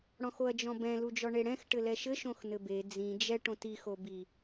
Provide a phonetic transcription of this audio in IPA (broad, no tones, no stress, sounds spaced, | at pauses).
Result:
ɽ ɔ̃ x o ɐ̯ d͡ʒ ɔ̃ b ɛ̃ l u d͡ʒ ɔ ɳ e ɽ ɛ̃ x ʈ ɘ l ɛ ʃ ɘ ʃ õ x n ɘ b e d͡z ĩ d͡ʒ ɛ ʈ õ t i x o b i